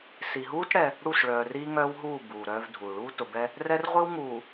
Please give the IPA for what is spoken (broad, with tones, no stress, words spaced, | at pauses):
si˨ɦuː˦t ɽɛ˦ | ɽu˦˨sɭœː˨ riː˦ŋœː˦wɦuː˦˨ buː˨ɾœː˦vdʱuː˨ ɭuː˦tʊ˨bɛ˦ | rɛ˦rʁʷi˦w ŋuː˨